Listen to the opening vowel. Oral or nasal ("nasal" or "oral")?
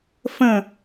nasal